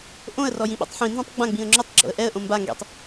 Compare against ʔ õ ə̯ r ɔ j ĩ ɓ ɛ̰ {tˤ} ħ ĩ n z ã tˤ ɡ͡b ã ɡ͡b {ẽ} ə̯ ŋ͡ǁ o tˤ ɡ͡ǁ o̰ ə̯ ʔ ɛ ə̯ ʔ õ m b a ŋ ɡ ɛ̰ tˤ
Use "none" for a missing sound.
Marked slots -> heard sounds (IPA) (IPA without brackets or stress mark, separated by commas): tˤ, ĩ